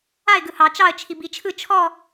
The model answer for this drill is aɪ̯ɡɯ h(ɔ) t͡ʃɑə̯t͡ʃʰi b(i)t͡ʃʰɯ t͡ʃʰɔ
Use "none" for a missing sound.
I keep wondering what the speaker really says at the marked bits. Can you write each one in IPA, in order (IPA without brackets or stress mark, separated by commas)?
ɑ, i